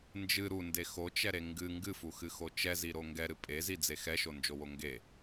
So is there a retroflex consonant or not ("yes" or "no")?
no